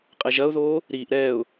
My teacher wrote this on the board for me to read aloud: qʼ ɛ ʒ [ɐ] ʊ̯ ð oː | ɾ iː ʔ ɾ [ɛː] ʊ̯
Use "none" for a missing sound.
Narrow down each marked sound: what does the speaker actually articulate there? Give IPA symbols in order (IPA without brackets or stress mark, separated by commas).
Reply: ɐ, ɛː